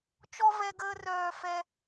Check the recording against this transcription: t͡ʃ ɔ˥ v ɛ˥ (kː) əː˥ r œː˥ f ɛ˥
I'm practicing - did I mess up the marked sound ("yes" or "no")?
yes